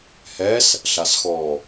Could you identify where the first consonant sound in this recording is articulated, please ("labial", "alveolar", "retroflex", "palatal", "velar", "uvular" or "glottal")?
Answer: glottal